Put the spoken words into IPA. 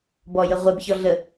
b ɔ j ə ʁʷ ɛ b ç ɔ ɮ ə

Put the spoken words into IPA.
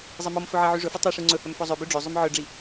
zˤ e m ɔ m f ɵ ʕ e ʕ y ʐ ɵ f u tˤ i ʂ ʉ ŋ͡ǀ ɵ h œ m f ɔ zˤ ø b ø ɖ͡ʐ ø zˤ ʉ m ʕ œ ɖ͡ʐ i

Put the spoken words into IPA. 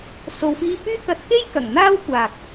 s o˨ w f iː˧ p yː˥ k ɐ˧ t̚ k e˥ j k ɐ˨˩ ŋ n̪ aː˥ w kʷ aː˨ k̚

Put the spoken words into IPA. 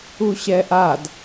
u ɕ ɛ ʔ a d

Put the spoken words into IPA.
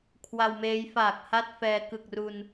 kʰ w a˧ w m eː˦˥ j f aː˨˩ k̚ h a˥˩ t̚ f ɛː˧ k ɯ˨˩ k̚ r u˧ n

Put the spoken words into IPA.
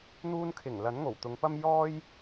n̪ uː˧ n kʰ ɪ˨˩ ŋ l ɐ˨˥ n ŋ o˨˩ w t̪ ʊ˨˧ ŋ p ɐ˥ m j ɔː˥ j

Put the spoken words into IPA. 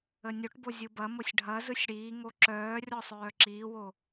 ə nʲ o ʈ b o zʲ ɯ b ɐ m o sʲ ɖʱ ɐ z ɯ sʲ ɽ iː ŋ o ǁ œː rʲ ɔ sˤ œː ǁ iː w o

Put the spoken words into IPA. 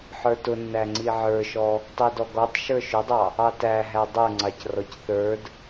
ħ ə˞ t ʊ nː æ ŋ͡ǀ i ʕ ə˞ ʃ ɔ | tˤ i d ɔ ɡ ɔ tˤ ʃ ə˞ ʃ ʊ dˤ ɑ | ɑ t æ ɦ æ dˤ ə˞ ŋ͡ǀ ɑ c r ɔ c θ ə˞ d

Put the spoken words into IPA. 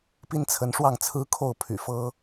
p i˦ n t͡sʰ ə˨˦ n ʂ w ɑ˥˨ ŋ t͡sʰ ɹ̩˦ kʰ o˥˨ ʊ̯ pʰ y̰˨˩ f ɤ˦

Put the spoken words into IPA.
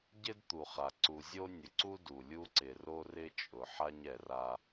ɟ ɪ˦ d t̪ u˨ χ a˨ ǀ u˨ zʲ o˦ nʲ ʊ˨ ǀ u˦ d u˨ lʲ u˦ ǀ ɪ˨ r o˦ r ɪ˦ t͡ʃʼ ʊ˨ ħ a˦ ɲ ɛ˨ r a˦

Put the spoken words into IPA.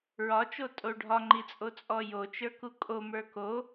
ɹ ɒ t͡ʃ o tʼ o ɖʱ ɒ ŋ͡ǃ i t͡sʼ o t͡sʼ ɔ j o t͡ʃ ə˞ k u kʼ o m ə˞ k o

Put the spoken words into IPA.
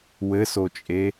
w ɘ s o t͡ʃʼ e

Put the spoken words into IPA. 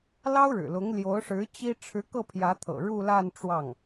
l ɑ˥ ʊ̯ ɻ ɻ̩˨˩ l ʊ˧˥ ŋ l j o˧˥ ʊ̯ ʂ ɻ̩˧˥ t͡ɕ i˥ ʈ͡ʂʰ ɻ̩˧˥ k ɤ˥˩ pʰ j ä˧˥ t̪ʰ ɤ̰˨˩ ɻ u˥˧ l a˥˧ n ʈ͡ʂ w ɑ˥˩ ŋ

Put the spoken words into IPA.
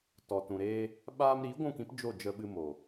t ɔ˨ t ũ˨ ɾ eː˧ | ɓ aː˧ m ɾ iː˨˦ ɡʷ ũ˦˨ k ĩ˦ p d͡ʒ o˦˨ d͡ʒ ə˧ ɓ ɨ˧ m o˨

